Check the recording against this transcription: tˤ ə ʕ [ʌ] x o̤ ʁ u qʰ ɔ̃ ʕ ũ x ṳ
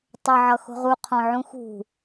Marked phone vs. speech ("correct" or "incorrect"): correct